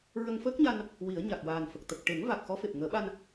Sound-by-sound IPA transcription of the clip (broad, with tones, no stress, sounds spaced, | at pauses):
ɹ ə˧ ŋ f əː˦˥ k̚ ɲ a˧ n | w i˨˩˦ ə̯ ɲ a˨˩ k̚ w aː˨˩ n f ə˨˩ k̚ t̪ ə˨˩ k̚ ʈ e˨˩˦ ŋ v a˨˩ k̚ x ɔ˧˥ f e˨˩ p̚ ŋ əː˨˩˦ ɓ a˧ n